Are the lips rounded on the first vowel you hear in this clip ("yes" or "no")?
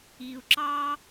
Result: no